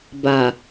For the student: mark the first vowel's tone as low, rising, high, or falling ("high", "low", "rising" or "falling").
low